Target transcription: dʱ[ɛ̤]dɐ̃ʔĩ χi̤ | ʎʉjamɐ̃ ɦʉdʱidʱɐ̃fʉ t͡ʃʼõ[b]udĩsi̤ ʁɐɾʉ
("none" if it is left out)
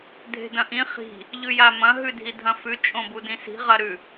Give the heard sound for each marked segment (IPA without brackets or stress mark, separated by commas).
e̤, b